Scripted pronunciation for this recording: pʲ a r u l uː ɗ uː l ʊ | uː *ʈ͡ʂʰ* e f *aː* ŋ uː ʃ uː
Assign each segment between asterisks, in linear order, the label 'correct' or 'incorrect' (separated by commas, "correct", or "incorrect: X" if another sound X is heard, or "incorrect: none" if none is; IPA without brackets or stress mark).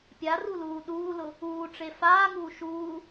incorrect: ʈ͡ʂ, correct